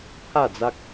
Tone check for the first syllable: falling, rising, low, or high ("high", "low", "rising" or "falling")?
falling